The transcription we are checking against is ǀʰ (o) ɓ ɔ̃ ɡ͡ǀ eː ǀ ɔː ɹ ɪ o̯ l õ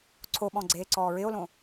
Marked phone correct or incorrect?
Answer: correct